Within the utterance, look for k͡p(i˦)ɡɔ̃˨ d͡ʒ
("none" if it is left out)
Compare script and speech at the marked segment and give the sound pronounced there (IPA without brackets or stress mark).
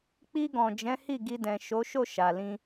i˧